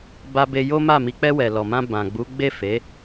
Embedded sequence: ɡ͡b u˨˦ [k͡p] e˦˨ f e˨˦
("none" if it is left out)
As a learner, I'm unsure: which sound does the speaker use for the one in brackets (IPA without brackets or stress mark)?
ɡ͡b